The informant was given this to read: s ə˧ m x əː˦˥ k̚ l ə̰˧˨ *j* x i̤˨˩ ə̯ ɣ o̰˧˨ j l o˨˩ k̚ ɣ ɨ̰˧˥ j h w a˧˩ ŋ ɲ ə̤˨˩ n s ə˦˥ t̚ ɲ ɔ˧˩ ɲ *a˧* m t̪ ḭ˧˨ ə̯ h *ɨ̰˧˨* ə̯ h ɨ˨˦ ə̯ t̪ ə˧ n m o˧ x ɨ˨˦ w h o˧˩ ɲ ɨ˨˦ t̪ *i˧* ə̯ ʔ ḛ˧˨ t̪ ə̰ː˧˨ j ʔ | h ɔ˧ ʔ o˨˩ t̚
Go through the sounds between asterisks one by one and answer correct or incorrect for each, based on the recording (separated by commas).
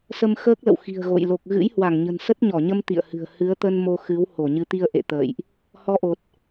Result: incorrect, incorrect, incorrect, correct